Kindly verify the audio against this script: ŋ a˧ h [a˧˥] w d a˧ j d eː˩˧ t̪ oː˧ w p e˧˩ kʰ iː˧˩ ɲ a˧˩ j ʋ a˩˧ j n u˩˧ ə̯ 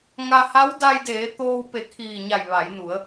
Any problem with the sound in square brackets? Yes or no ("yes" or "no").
no